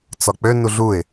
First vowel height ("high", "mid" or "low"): low